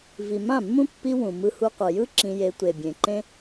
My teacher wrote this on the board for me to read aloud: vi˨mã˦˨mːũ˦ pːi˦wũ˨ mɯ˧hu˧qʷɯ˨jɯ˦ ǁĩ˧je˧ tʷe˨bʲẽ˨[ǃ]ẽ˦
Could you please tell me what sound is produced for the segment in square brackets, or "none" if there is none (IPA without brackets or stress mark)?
ǃ